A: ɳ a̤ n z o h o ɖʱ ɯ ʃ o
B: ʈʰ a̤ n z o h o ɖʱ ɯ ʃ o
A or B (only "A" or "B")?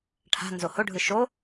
B